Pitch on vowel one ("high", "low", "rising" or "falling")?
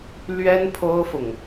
high